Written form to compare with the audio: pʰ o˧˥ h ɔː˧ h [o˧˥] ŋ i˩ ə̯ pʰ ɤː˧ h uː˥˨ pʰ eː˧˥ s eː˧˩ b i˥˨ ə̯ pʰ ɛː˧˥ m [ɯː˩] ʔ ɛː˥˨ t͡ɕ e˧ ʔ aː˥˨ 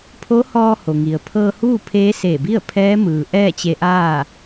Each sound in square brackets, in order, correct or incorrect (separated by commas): incorrect, correct